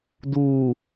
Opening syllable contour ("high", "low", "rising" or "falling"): low